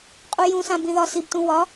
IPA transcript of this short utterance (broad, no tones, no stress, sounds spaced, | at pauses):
qʼ u j ũ s ã b ĩ ð ɒ s i b t ũ w ɒ